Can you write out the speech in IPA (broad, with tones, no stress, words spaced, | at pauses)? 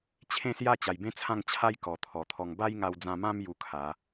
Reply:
t͡ɕʰẽ˥˧sja˥˧ t͡ɕa˨˩jbẽ˦t͡sʰã˥˧ŋ t͡ɕʰa˦jkɔ˨˩ t̪ʰɔ˨˩t̪ʰɔ˧ŋ ba˦jŋa˧wd͡zã˧mã˦m ju˧kʰa˨˦